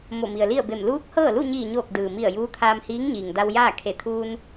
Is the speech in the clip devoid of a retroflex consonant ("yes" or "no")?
yes